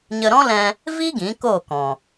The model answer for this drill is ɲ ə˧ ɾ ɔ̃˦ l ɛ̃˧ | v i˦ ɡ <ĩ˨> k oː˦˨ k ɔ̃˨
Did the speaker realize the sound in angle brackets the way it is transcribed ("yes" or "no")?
no